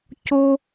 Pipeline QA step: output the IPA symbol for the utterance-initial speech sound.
c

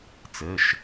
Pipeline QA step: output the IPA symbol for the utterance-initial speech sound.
t͡s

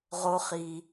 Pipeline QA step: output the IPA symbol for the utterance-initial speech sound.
ʁ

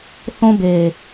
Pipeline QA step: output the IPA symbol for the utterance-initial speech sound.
θ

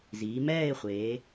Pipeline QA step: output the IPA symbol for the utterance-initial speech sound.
z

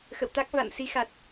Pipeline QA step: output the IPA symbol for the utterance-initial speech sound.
x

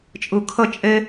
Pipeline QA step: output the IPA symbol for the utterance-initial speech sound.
t͡ʃʼ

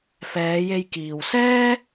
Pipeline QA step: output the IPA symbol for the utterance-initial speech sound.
f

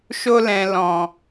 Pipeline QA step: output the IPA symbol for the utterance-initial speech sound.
ʃ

